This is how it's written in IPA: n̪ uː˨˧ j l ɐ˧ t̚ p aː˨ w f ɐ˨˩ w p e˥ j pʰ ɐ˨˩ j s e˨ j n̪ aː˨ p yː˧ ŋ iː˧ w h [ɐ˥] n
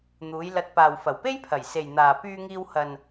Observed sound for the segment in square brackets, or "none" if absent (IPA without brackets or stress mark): ɐ˨